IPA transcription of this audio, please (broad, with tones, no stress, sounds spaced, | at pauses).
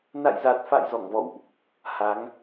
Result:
n a̰˧˨ j z a˨˩ t̚ f a̰˧˨ j z ɔ˧˩ ŋ v ɔ̰˧˨ w ʔ | h a˨˦ ŋ